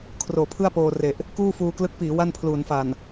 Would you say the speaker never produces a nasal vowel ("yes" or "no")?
yes